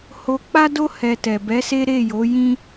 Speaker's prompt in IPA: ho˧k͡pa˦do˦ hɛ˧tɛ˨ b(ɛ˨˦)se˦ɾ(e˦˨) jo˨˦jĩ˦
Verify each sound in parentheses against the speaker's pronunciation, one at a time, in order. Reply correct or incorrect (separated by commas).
correct, correct